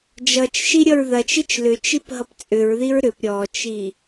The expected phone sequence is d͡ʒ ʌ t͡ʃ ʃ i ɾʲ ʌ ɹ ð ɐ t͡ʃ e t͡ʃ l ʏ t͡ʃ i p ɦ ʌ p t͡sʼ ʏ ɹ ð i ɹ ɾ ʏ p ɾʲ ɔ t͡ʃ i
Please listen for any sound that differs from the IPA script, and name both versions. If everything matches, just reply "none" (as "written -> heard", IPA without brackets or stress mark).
none